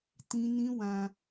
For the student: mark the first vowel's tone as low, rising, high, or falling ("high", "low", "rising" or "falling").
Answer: high